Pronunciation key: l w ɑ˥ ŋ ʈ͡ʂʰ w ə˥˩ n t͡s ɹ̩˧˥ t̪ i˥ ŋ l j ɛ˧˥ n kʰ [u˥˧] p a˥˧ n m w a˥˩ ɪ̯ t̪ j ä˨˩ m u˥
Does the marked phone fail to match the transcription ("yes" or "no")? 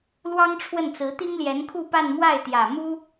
no